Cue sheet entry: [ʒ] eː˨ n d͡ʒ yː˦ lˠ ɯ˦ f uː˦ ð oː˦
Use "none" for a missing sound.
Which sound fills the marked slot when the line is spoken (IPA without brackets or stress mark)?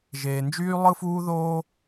ʒ